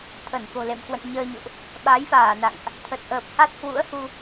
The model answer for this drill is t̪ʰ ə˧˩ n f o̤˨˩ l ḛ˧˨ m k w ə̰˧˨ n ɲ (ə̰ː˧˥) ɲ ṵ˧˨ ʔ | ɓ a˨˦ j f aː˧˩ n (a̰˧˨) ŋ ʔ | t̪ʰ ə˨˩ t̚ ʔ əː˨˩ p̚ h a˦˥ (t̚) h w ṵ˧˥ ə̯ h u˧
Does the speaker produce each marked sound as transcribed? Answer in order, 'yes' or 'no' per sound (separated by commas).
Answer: no, yes, yes